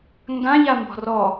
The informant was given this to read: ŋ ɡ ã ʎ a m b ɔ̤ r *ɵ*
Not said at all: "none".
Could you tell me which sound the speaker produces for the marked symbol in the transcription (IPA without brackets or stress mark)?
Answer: ɔ